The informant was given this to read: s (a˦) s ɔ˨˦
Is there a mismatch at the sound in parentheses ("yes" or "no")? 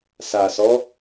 yes